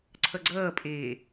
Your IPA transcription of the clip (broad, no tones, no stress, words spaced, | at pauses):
ǀʰʌɡ͡ǀʌːpʼeː